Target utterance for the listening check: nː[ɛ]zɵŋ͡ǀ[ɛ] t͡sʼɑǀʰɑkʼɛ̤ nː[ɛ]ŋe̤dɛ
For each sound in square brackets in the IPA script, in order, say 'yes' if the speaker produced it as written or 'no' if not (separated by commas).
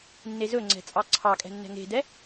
no, no, no